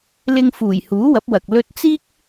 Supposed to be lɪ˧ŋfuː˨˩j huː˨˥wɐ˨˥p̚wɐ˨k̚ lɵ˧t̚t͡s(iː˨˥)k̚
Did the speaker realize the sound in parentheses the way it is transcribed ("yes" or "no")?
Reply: no